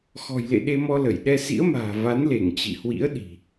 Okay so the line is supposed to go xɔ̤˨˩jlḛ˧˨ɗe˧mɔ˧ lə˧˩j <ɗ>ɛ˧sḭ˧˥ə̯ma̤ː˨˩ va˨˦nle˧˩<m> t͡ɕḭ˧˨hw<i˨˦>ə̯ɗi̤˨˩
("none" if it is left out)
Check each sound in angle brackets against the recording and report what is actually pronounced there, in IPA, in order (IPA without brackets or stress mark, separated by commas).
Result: ɗ, ŋ, ḭ˧˥